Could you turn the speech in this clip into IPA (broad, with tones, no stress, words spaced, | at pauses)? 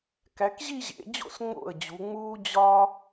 kæ˩˧kʑi˥˧ʑḛ˩˧d͡ʑo̰˥˩s ŋ͡mo̰˥˩ə̯d͡ʑu˩˧ ŋ͡muː˥d͡ʑɒ˥